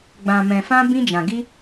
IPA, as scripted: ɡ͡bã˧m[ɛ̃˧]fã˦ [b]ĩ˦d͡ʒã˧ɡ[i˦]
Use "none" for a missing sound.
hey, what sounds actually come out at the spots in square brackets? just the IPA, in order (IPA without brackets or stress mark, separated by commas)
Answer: ɛ̃˧, b, i˦